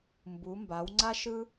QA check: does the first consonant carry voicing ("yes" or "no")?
yes